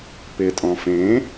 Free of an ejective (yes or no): no